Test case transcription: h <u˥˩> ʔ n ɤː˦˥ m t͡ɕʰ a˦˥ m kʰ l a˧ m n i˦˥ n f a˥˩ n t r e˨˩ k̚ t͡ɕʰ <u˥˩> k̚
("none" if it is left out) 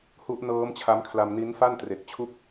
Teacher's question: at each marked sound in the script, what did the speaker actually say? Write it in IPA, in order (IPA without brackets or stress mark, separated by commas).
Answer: u˦˥, u˥˩